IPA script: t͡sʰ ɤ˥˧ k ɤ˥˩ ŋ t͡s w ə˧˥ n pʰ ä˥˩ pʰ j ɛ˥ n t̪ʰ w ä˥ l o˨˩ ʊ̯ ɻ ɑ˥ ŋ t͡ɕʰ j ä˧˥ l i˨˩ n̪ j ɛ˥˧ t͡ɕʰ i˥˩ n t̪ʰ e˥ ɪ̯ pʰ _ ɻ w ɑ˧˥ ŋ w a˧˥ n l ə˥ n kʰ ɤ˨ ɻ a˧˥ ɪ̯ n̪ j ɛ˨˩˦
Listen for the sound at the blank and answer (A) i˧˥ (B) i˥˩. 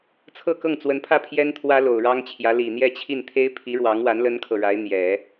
A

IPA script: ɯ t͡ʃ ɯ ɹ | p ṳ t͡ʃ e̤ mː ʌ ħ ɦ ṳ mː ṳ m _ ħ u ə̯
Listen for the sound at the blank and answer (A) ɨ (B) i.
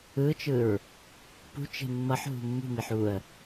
B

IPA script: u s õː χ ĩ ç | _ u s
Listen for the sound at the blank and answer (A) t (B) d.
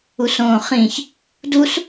B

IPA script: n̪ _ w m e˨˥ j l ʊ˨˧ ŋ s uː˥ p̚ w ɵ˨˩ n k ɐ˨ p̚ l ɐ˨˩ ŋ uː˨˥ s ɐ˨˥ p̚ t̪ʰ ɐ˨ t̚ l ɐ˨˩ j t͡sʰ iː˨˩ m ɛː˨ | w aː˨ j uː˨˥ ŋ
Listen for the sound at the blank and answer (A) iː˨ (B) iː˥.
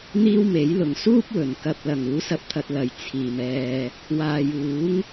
B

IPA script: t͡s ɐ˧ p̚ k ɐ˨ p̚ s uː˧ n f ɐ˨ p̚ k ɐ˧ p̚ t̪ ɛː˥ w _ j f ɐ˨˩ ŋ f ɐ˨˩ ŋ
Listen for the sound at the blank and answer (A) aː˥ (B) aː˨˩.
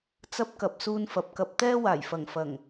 B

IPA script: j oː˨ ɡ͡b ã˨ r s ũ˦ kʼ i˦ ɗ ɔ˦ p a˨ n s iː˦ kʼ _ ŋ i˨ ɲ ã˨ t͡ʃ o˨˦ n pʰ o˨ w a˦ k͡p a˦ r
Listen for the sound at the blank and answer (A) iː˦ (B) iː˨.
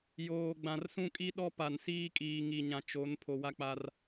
B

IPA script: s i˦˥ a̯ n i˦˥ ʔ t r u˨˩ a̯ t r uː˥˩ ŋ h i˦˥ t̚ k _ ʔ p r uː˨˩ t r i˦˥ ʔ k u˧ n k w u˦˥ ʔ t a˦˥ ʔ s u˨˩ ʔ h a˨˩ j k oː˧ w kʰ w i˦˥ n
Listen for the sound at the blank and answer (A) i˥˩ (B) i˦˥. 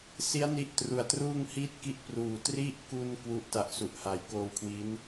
A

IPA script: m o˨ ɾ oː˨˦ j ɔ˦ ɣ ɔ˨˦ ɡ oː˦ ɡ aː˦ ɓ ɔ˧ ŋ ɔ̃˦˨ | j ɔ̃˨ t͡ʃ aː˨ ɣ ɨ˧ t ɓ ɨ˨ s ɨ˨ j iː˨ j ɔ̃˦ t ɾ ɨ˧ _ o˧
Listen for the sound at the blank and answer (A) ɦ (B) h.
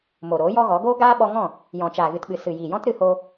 B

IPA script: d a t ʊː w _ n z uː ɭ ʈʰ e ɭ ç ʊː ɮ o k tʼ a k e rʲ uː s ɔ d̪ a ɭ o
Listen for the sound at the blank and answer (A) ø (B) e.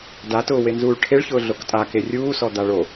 B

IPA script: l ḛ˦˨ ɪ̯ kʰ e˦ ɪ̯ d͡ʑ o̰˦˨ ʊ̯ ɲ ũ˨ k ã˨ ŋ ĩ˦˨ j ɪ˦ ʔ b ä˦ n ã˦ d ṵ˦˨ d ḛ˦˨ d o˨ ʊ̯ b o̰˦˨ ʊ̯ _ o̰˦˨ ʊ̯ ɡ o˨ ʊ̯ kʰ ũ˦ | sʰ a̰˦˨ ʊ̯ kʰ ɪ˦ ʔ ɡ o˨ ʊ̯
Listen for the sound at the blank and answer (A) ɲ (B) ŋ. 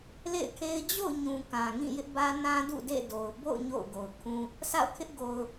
A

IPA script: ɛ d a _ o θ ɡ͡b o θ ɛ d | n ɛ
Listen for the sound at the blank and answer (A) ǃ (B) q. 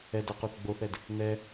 B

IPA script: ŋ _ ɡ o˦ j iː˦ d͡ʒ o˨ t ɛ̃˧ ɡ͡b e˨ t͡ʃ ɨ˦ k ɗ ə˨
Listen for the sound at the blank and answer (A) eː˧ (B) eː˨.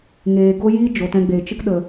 B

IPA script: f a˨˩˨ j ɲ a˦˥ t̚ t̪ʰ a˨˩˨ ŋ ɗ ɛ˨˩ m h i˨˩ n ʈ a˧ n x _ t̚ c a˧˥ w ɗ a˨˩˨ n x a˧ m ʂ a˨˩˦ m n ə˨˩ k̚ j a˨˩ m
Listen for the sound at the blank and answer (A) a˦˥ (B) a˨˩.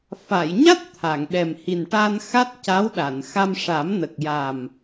A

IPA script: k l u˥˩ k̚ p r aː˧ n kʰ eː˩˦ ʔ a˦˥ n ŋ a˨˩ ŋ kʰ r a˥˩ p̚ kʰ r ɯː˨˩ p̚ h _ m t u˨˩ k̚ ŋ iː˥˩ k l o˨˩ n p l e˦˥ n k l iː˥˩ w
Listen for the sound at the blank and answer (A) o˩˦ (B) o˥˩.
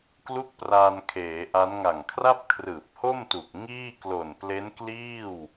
B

